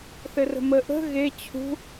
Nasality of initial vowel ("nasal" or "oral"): oral